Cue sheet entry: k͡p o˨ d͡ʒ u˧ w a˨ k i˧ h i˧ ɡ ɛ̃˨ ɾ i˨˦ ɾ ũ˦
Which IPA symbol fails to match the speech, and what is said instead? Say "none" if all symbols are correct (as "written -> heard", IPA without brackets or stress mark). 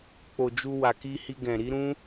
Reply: none